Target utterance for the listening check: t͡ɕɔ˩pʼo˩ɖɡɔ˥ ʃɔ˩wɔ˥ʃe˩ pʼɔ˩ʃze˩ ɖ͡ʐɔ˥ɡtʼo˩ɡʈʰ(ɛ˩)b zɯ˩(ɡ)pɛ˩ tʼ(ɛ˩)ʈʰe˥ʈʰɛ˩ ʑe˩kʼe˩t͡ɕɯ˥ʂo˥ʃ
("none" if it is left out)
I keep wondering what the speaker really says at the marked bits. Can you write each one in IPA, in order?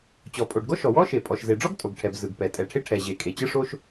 ɛ˩, ɡ, ɛ˩

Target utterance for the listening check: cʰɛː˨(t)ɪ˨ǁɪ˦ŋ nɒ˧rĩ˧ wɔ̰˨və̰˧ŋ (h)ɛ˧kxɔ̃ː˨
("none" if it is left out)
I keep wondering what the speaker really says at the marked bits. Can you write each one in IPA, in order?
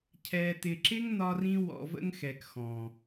t, x

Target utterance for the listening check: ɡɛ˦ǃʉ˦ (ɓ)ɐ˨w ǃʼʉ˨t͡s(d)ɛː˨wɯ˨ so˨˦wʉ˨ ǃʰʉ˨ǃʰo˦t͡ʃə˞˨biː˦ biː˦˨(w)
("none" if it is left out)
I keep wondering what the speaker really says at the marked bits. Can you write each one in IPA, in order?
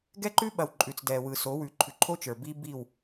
ɓ, d, w

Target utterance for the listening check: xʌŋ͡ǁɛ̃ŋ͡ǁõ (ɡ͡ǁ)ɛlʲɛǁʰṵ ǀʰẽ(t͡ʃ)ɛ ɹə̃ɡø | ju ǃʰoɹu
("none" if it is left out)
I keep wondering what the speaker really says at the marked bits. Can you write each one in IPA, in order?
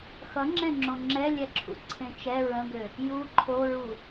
ŋ͡ǁ, t͡ʃ

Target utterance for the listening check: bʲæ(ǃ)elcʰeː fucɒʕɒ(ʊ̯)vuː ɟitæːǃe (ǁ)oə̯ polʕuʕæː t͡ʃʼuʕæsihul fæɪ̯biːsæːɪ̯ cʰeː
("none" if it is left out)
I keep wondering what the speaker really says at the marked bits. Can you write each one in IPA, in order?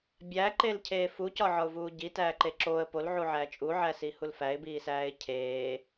ǃ, ʊ̯, ǁ

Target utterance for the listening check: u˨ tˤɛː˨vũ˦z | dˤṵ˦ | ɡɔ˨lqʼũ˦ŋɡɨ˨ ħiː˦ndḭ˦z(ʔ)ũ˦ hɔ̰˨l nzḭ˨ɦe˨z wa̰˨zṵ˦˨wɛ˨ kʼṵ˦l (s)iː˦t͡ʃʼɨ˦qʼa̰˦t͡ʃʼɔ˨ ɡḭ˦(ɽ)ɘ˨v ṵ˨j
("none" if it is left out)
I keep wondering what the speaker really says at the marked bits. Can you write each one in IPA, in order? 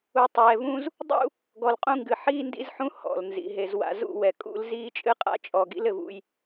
ħ, z, l

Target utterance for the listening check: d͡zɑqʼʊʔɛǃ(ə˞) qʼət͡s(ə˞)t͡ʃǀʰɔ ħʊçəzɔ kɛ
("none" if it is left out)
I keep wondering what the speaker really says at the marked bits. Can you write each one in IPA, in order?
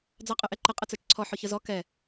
ə, ə˞

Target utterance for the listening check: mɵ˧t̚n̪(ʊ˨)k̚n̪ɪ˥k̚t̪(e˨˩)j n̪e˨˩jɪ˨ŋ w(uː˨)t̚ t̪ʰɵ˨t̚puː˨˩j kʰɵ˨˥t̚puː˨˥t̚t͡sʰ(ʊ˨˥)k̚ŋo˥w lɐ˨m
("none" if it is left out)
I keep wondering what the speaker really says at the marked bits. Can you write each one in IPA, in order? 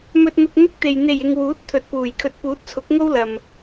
ʊ˧, e˨, uː˨˥, ʊ˨˥

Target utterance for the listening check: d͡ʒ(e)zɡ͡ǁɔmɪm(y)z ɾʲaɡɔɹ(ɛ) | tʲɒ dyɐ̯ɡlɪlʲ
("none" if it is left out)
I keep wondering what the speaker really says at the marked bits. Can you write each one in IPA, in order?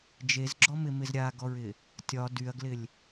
e, ɪ, ɪ

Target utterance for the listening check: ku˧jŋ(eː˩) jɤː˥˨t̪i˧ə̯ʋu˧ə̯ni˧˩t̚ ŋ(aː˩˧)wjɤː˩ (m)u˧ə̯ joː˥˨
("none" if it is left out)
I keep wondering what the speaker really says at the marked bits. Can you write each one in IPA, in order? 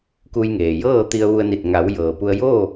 eː˩, a˩˧, p

